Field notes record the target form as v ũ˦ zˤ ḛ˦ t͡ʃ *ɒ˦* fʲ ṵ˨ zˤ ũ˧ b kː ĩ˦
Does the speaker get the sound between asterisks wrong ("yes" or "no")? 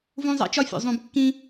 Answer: no